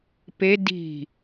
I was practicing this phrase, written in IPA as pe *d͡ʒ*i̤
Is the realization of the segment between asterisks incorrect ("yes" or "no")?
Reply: yes